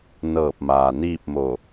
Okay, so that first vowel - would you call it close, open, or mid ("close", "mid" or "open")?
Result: mid